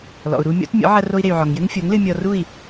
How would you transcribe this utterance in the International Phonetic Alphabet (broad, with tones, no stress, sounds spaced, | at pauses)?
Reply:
l ɔ̰˩ u̯ ɾ u˧ mʲ ɔ̰˩˥ t mʲ ɔ̰˩˥ ʕ ɐ˧ r o˧ i̯ ɾ e˩ y̯ ʕ ɔ˩ ŋ j ɘ˥ ŋ fʲ o˩˥ ŋ l ɨ˧ mʲ ɔ˧ r u˥˩ i̯